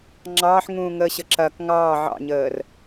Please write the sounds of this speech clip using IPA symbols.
ŋ͡ǁɑːħŋũːŋəːɕə ǁɐk ŋɑː ʕɑ̰ɲəːr

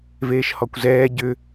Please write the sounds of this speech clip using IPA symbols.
veːʃhɔkʷzɛː ɟʏ

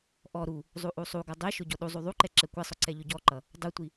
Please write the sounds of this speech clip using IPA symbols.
ʔɔ ɾu | zˤuʔusˤuɡʌ dˤɛʃʊ ɟɔɗuzˤu ðˤuǃɛ ǁɛkʷɛsˤʊ ǀɛʎʊɟɔǃʌ | dˤutʷi

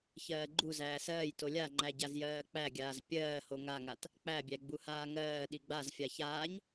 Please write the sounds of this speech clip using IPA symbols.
çɜːɡ͡ǃu zæːsɜːj tolʲaŋ͡ǃæ ɟazjɜːk͡pæɡʲaːz pʲɜːho ŋaŋat | k͡pæbʲæ ɡ͡buhaːŋɜː ɗiɡ͡bazfʲa çaːɲ

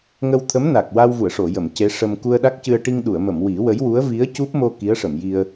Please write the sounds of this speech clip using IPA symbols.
ŋə˧wt̪ʰə˧˥mna˨˩k̚ wa˧wvu˨˩˨ə̯ʂo˨˩˨jə˨˩˨m ce˧˥ʂə˧m ku˧ə̯ɗa˦˥k̚cɨ˧ə̯ ʈi˧ŋɗu˨˩˨ə̯mə˨˩˨m wi˨˩˦wə˧˥jwu˧˥ə̯ vi˧˥ə̯cu˦˥p̚mo˧ ki˧˥ə̯ʂə˨˩˨mji˧ə̯

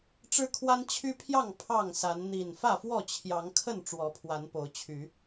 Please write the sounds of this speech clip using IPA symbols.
ʈ͡ʂɻ̩˦kʰwa˦nt͡ɕʰy˦pʰjɑ˥˨ŋ pʰɑ˥˨ŋsa˨˦n n̪i˨˩n fä˥˨fwɔ˥˨t͡ɕʰjɑ˨˦ŋkʰə˥˨n ʈ͡ʂwɔ˨˦pʰwa˨˦npo˨˦ʊ̯t͡ɕʰy˨˦

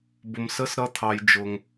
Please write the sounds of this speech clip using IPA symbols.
bʊ˧msə˦sɾʌ˦t̪ʰɑ˧j d͡ʒʊ˧ŋ

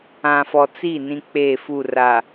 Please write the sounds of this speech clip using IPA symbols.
ã˨fɔ˨ t͡si˦˨ nĩ˦k͡pe˦˨fu˦˨ ra˨

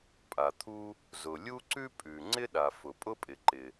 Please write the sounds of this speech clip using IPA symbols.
pʼa˩t̪ʰu˥ | zʊ˩lʲu˥ ǀʉ˥pʼʉ˩ ŋ͡ǀɪ˥ɗa˩ fʊ˩pʼʊ˥pʼɪ˩ǃɪ˩

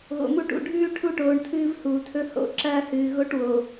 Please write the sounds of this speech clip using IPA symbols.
ɣo̰˨mu˦ʈṵ˨ ɖʱʉː˦ ʈʰu˦ ʈoː˨ɳ tʰɨː˦vhuː˨tʰɵ˦ ho̰˨˦ ǁɐː˦hɨː˨ ɣo˦ʈwo˨

